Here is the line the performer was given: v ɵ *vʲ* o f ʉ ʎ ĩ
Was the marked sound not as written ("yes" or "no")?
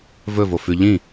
yes